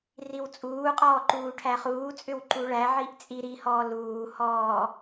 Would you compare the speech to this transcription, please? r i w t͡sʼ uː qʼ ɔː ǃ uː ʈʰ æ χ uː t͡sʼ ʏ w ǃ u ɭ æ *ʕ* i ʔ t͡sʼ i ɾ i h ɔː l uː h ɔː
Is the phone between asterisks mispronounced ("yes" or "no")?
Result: no